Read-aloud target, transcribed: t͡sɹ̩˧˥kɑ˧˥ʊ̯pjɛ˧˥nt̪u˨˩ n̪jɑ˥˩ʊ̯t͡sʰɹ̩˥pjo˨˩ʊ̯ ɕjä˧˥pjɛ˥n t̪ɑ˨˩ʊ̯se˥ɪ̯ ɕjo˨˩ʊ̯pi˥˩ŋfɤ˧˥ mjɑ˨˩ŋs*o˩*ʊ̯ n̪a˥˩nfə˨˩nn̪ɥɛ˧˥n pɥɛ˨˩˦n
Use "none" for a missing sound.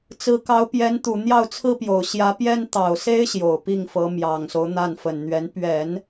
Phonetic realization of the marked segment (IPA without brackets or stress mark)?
o˦